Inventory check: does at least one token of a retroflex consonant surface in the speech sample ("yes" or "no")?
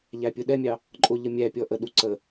no